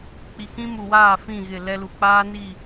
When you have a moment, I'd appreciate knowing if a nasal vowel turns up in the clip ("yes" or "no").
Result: yes